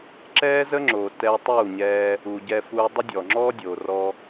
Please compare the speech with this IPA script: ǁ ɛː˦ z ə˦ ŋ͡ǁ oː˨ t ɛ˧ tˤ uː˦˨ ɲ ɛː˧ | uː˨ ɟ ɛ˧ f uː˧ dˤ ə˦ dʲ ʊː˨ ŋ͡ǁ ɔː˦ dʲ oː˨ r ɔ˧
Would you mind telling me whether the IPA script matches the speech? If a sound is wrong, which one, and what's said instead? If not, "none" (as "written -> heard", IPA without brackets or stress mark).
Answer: ʊː˨ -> ɔː˨